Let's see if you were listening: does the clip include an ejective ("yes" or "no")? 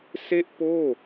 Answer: no